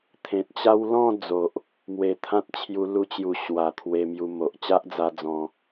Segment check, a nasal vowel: present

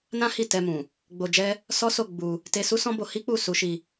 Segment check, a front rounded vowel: absent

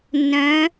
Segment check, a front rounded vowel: present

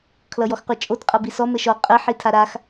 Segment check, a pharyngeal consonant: present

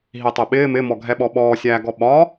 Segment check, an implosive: present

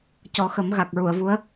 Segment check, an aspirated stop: absent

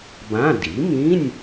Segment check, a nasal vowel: present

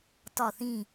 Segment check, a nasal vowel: present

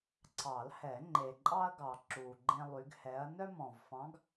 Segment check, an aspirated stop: absent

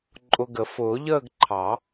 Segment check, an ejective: present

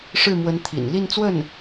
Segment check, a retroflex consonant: present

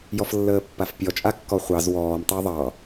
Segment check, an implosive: absent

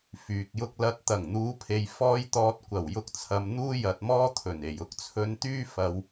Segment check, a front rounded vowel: present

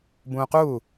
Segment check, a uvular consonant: present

